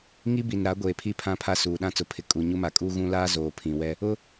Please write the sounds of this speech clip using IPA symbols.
ŋ i˦ b i˨ n ɾ a˨˦ ɡʷ eː˨ pʰ i˦˨ pʰ ã˦ pʰ a˦ s uː˨ ɗ ã˦ t͡s ʊ˨ pʰ ɪ˨ kʼ u˨ ɲ u˦ m a˨ kʼ uː˦ ɣ ũ˦ l aː˦ z oː˨ pʰ ĩ˨ w ɛ˦ | ʊ˦

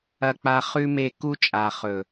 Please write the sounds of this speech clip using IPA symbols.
ɐ˦ k͡p a˦ χ ʉ˦ m e˦˨ k u˦ t͡ʃʼ a˨ χ ɵ˨

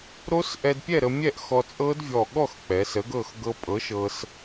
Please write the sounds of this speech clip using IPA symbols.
ɾ o˦˥ s ʔ ɛ˧ d pʲ ɛ˥˨ ɾ ə˧ mʲ ɛ˥˨ ʔ x ɔ˧ t͡sʼ ɤ˦˥ d vʲ ɔ˧˩ ɠ ɔ˥˨ x k͡p ɛ˩˧ s ə˨˥ ɡ ɤ˥˨ x ɡ ɤ˦˥ pʼ ɤ˨˥ ʃ ɤ˧ s

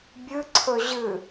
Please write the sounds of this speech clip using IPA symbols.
bʲ ɨ ǀʰ ɵ ʑ ɨ

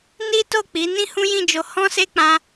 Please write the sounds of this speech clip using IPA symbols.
n i˦ t o˦˨ k͡p i˨˦ n ĩ˦ h ũ˦ j ĩ˦˨ d͡ʒ o˧ h ɔ̃˦ s e˦ k͡p ã˧

